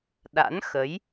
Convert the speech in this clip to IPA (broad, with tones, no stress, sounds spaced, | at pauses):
ɗ a̰˧˥ n x ə˨˦ j